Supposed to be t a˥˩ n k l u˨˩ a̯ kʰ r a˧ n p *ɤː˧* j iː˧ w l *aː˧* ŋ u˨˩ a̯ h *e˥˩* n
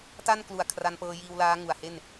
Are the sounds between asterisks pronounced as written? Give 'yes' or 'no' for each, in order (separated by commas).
yes, no, yes